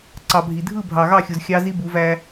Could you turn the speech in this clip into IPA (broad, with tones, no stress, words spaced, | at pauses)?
ǀɑ˨bʱi˨dʱɯ˦˨ bʱɑ˨ɣɑ˦˨xʲu˨z xʲɑ˦ zi˦bu˨˦væ˦